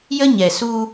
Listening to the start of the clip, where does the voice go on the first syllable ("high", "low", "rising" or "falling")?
high